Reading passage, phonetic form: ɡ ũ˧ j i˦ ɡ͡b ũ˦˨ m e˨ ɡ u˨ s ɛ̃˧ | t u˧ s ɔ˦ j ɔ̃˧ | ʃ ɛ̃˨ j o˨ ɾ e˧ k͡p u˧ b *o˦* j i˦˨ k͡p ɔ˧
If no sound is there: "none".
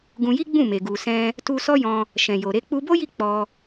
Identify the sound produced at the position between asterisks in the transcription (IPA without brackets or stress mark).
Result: o˦